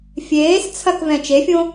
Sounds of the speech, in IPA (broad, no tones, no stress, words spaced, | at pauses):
fʲeːs t͡sʰɐkvɛ̃ t͡ʃefʲõ